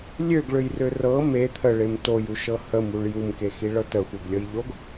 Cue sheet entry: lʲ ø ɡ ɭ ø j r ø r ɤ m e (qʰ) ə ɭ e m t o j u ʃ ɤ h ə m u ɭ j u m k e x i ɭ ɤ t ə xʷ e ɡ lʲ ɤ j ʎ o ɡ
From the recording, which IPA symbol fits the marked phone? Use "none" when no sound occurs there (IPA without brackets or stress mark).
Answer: t̪ʰ